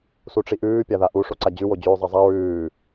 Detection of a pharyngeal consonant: absent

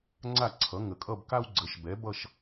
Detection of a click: present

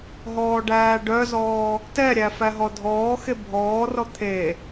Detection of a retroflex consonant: present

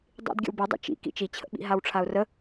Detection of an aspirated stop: present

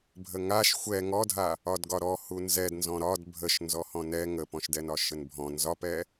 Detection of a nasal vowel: present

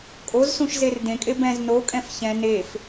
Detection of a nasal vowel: present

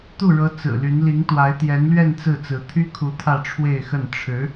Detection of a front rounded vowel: present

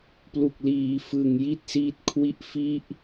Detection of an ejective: absent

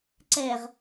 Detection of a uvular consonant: present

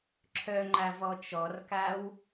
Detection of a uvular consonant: absent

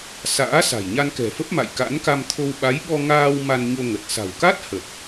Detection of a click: absent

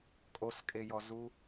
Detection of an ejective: present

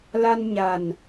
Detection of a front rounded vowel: absent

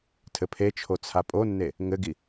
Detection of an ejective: present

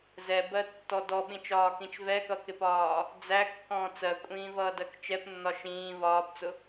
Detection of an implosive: present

